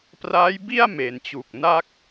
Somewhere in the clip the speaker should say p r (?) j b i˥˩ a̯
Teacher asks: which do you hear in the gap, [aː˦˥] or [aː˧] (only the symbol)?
aː˦˥